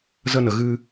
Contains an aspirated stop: no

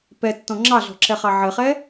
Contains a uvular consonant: yes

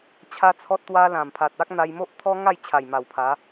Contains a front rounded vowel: no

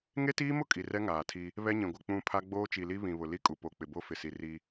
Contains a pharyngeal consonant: no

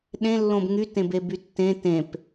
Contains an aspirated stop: no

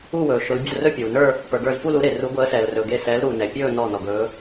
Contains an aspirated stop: no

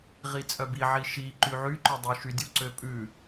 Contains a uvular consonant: yes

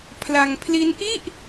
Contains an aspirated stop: yes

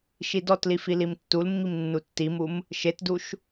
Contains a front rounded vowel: no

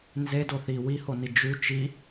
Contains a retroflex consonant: no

